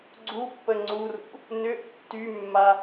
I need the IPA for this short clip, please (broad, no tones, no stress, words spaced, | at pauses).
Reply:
ɡ͡ǀupːə ŋ͡ǀurṵ | nʏʔə̰ tːymːa